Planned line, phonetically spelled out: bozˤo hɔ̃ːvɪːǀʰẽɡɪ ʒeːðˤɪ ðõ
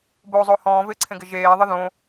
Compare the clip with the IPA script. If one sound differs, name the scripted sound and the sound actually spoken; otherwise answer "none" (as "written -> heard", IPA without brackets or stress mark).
none